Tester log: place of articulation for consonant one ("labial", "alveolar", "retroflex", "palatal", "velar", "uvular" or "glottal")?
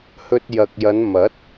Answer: glottal